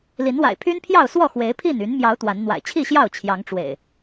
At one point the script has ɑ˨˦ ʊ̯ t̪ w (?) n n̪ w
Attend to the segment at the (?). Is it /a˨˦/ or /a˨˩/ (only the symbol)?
a˨˦